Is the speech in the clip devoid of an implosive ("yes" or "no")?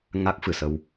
yes